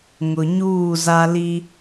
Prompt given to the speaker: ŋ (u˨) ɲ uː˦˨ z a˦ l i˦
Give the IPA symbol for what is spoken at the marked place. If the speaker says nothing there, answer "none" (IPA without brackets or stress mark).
ʊ˨